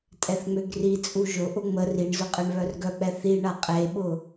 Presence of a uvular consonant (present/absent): present